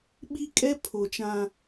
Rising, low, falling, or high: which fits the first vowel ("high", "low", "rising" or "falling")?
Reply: high